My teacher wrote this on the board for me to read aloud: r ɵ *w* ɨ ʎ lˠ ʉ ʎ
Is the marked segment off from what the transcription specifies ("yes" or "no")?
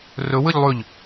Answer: no